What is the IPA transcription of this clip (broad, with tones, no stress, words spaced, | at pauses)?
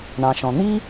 ɳɑ̃˩ʃɔ̃˩n̪i˥